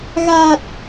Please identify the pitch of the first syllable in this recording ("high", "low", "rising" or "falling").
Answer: low